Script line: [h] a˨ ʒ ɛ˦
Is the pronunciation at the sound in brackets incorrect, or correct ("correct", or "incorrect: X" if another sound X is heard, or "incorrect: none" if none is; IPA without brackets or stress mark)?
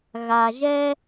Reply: incorrect: ɣ